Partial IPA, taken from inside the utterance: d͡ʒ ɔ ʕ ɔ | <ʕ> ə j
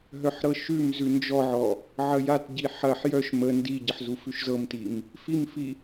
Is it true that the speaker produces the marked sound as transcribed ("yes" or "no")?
yes